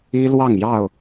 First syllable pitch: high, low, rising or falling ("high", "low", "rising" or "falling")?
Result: high